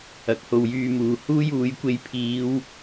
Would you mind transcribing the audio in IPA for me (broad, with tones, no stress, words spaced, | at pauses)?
ɐ˨˥k̚ho˨wjyː˧muː˨ huː˥juː˨˥jkʷe˧j pʰiː˨˧w